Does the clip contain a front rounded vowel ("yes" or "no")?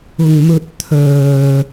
yes